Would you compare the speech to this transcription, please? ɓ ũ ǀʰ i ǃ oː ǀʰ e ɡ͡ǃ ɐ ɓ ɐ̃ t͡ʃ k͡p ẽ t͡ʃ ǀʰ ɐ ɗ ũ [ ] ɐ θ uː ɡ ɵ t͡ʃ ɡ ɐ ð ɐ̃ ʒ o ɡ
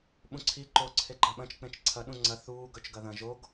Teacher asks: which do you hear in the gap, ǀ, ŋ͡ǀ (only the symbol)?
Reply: ŋ͡ǀ